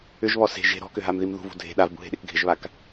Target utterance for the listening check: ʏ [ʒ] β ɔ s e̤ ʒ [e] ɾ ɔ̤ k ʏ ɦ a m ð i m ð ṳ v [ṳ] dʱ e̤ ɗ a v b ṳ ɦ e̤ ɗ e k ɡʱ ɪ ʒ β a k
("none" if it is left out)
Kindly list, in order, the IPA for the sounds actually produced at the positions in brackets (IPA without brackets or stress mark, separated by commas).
ʒ, e̤, ṳ